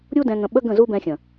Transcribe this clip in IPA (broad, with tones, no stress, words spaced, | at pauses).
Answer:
ɾʲu˦dɛ̃˧ ŋə̃˧ɓə˦ ɡə̃˦˨zu˦bɛ̃˧xʲə̃˨